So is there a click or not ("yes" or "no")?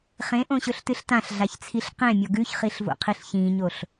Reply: no